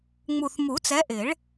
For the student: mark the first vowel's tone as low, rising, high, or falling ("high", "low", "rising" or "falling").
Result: low